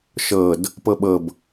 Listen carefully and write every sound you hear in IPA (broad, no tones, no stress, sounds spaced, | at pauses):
ʃ ɤ d | p ɤ ɓ ɤ b